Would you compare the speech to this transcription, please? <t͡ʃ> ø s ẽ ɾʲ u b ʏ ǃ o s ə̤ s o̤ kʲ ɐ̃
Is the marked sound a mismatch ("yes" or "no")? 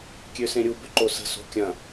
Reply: yes